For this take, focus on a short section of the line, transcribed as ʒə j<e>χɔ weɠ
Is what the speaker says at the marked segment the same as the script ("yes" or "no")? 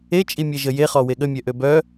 yes